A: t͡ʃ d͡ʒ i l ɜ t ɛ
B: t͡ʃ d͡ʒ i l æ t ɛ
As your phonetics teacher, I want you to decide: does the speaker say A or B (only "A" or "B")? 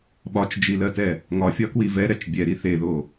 A